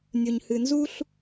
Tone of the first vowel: low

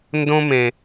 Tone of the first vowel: high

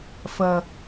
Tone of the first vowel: low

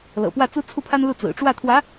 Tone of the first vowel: low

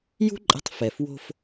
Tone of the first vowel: high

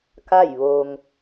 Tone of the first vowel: falling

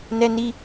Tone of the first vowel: high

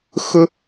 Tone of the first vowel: high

